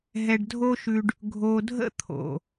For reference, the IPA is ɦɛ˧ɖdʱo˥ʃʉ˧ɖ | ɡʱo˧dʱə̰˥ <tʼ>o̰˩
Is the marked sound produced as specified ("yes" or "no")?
no